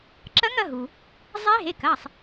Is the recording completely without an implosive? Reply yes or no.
yes